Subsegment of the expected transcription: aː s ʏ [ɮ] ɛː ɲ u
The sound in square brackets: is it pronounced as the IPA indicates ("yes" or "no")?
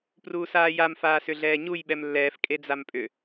yes